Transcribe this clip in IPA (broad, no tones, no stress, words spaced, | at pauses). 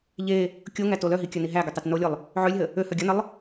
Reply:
ʎe | kʲoŋæto lœɦikʲœni ɦæɡøtˤæt nolʲʊlˠ | ʕølʲɦə | øhœ ɡʲənəlˠ